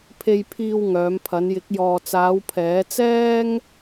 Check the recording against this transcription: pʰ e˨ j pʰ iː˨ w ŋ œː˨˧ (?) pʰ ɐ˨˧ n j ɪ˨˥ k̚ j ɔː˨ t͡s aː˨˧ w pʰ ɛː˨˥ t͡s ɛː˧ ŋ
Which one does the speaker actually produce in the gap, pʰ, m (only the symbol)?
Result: m